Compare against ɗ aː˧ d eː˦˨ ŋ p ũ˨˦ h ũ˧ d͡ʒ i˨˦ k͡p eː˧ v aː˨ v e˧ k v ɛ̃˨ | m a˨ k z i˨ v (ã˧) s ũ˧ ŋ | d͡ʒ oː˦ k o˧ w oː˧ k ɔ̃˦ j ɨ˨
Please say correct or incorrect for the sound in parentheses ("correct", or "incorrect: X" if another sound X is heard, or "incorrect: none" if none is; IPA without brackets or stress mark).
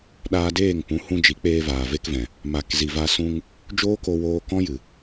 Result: incorrect: a˧